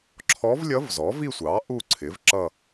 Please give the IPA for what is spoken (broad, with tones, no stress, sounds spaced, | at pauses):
ǁʰ ɔ˧˥ v lʲ ʌ˧˥ v z ɔ˩˥ v i˥˧ sʷ ɑ˩˥ ʔ u˥˧ ǀʰ ɪ˩˥ v ǁ ʌ˥˧